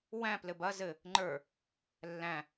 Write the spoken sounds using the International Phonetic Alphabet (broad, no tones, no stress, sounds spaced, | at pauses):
w æ̃ p l ɘ b ɐ z ɘ | ŋ͡ǃ ə˞ | lː æ̃